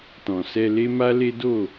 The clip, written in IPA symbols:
tɔ̃˨sɛ˧le˦ma˦ le˦do˦˨

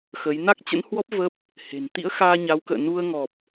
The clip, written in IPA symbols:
xə˨˦j na˦˥k̚t͡ɕə̰˧˥nhwɔ˦˥p̚ və˦˥p̚ | he̤˨˩n t̪ḭ˧˥ə̯xaː˧ɲa˨˦w kə̰ː˧˨nu˧ə̯ ŋɔ˨˩p̚

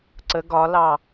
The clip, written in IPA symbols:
ǀə ɡɒlɑ

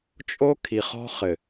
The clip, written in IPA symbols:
t͡ʃʼo˦ kʰi˨χɔ̤˦χɘ˨

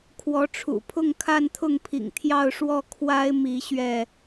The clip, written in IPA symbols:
kʰwɔ˨˦ʈ͡ʂʰṵ˨˩pʰʊ˥˨ŋ kʰa˥˨nt̪ʰʊ˥˨ŋpʰḭ˨˩ŋ t̪ʰjɑ˥˨ʊ̯ʂwɔ˥˨ kʰwa˦ɪ̯mi˨˦ ɕɥɛ˥˨

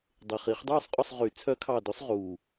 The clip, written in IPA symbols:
dˤe˨˩χi˨˩˦χdˤuː˥˨sˤqʼɵ˥˨sˤ ʁy˨˩˦ t͡sʰœ˨˦kʰɑ˨˩ dɵ˨˦sˤʁuː˨˩

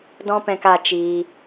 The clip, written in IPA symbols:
dɔ̃˦pɛ̃˧ka˧ t͡ʃiː˧

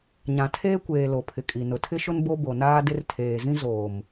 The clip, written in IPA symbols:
ɲã˨tʰeː˦kʷeː˨ lo˨pʰɪ˨kʼi˨ nʊ˨tʰɪ˦ʃʊ˦n bo˦bo˨naː˦dɪ˦r tʰeː˨zĩ˦ zoː˨m

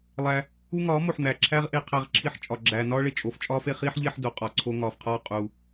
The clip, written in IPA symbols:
lˠæ˧ | u˦ŋɒː˨˦mo˨ħn̪æ˨ ǁʰæ˦ʁʔe˧ qʰæ˧ʁǁʰi˧ħt͡ʃʼɒ˨ ɡ͡ǁæː˨nɒː˦ɭe˨ t͡ʃʼo˨ft͡ʃʼɒː˦fe˧χiː˦ħ ʎe˦ħdo˨qʼɒ˧ ǀʰo˧ŋɒː˨fqʰɒː˦ qʼu˧

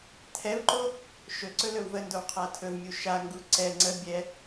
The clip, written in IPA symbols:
tʰɛvǃo | ʃɵǀɵ lɵwvəndow qʰatʰɵvmʲu ʃaŋɡu ǀɛ ŋ͡ǀə bʲɛ

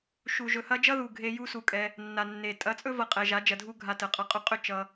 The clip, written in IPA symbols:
ʃu˨ʒɵ˨hɐ˦ d͡ʒʌ˦ðu˨ ɡʱe˧ ju˦su˧kʼɛ˧ | nːa˨nːe˨ tʼɐ˨˦t͡sʼɵ˦vʌ˨ qʼɛ˨ʒa˨˦ d͡ʒɐ˧dʱu˦ɡʱa˧ tə˨qʼʌ˧ qʼɵ˧qʼɵ˦˨ t͡ʃʌ˦

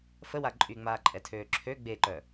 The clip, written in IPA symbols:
fəwa ǃʼyŋ͡maːǃʼɛtʰøː ǁʰø ɡ͡beǃœ

